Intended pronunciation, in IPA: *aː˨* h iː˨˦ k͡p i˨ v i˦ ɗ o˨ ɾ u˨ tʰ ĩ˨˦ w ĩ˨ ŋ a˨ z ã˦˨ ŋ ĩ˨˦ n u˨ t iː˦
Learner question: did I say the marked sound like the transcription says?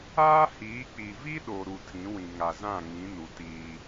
no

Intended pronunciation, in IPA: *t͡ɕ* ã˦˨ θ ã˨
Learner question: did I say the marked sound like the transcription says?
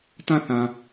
no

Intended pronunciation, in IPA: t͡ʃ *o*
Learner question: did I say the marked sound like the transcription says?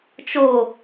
yes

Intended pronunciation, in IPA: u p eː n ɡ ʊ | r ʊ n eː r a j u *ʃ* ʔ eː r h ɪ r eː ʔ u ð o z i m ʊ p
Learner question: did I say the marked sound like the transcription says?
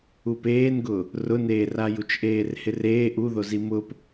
no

